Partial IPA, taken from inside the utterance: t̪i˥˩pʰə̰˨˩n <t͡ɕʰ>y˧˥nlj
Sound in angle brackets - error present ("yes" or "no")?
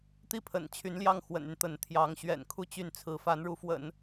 no